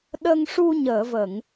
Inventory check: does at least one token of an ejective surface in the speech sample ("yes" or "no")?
no